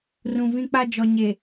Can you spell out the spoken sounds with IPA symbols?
rũ˨vĩ˦k͡pa˦ d͡ʒɔ˨ɲe˨

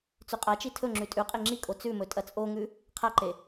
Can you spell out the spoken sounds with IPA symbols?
t͡sʉqʼat͡ʃi tʰɵŋ͡ǁʉ tʼʉqʼe ŋ͡ǁikʼo t͡sʉmɵ tʼɐt͡sʼoŋʉ | qʰaǃe

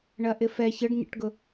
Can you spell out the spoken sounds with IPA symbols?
ɳɐʔɪfɛ çəɖɲə̰ʈɡʊ

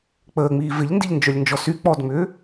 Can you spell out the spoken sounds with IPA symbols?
k͡pəːŋ͡miː vɪʎndiʎnd͡ʒœlʲnd͡ʒɔ sy k͡pɔdŋ͡mʏː

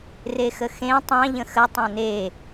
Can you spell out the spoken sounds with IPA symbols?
rexəxẽ tˤɑ̃ ʎə̃xə tˤãne

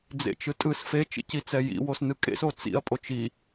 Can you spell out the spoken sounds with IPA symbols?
d͡zḛt͡ʃɯtʼɯs fe t͡ʃḭcit͡sɛjḭ wosnɯkʼḛs ot͡sḭɐ̯ pʼot͡ʃi

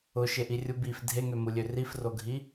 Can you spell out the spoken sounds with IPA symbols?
ʊʃeʔirʲu bif dʱeŋømulʲø rifroɡʱi

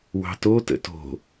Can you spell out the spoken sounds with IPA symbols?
wɑ̤to tə̰to̤

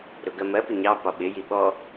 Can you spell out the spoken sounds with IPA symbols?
ɾʊɡɜmɜpɪ ɲɑ pɒɓɪji ɓɔ

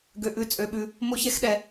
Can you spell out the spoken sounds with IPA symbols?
ɡø˧ʔʉ˧ t͡sʼø˧ɓʉ˧ | mo˥çɛ˥xɗɛ˧

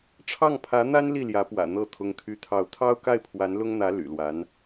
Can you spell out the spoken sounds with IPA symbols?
ʈ͡ʂʰɑ˥˩ŋpʰä˧˥n̪a˥n li˥˩ljä˧˥pwä̰˨˩ n̪ɤ˥˩ t̪ʰʊ˥ŋt̪ʰy˥t̪ʰɑ˥˩ʊ̯ t̪ʰɑ˥ʊ̯ka˥˩ɪ̯pʰwa˧˥n lʊ˥ŋn̪ä˧˥ ly̰˨˩lwa˧˥n

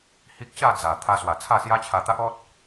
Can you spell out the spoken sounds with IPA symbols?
hi˦k̚ ɕa˥˧d͡za˨˩ t̪ʰa˧swa˨˩ t͡sʰa˥˧sja˦t͡ɕʰa˧ t̪a˦ʔɔ˦t̚

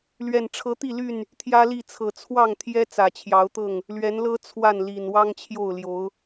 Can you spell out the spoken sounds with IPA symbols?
lɥɛ˨˩nʈ͡ʂʰɤ˨˦ t̪i˥˨ly˥˨n | t̪ʰjä˦li˥˨t͡sʰɤ˨˩ t͡sʰwɑ˥˨ŋt̪ʰjɛ˦ t͡sä˨˩t͡ɕʰjɑ˨˦ʊ̯t̪ɤ˥˨ŋ | lɥɛ˨˦nlɤ˦ t͡sʰwa˥˨nli˨˩n wɑ˦ŋt͡ɕʰjo˥˨ʊ̯ljo˨˦ʊ̯

